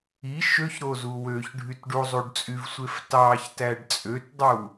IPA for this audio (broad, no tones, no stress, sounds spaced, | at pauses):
i ʃ ø ç ɾ o z u w ø ç ɖʱ y t ɖ u zˤ u ɖ t͡sʼ y v sʷ e f t ɑ ç t æ ɖ t͡sʼ ø t dˤ u